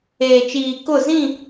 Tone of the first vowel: low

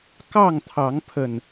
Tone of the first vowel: falling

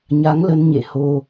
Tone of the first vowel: rising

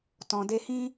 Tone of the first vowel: low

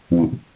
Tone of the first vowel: low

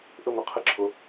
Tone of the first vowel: falling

